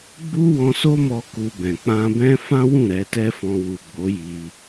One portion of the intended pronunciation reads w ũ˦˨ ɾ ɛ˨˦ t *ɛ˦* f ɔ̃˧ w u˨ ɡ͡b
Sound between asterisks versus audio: correct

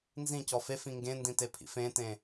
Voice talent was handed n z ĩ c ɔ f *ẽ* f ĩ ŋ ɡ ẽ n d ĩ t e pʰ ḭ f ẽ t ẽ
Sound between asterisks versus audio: incorrect: e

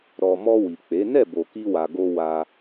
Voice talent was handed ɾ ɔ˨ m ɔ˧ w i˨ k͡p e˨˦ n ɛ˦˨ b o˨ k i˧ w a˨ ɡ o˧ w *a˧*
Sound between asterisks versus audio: correct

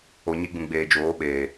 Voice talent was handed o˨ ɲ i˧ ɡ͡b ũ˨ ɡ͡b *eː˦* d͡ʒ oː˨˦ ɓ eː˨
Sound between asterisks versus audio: incorrect: eː˨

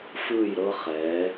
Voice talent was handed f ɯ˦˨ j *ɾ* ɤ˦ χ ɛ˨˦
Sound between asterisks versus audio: correct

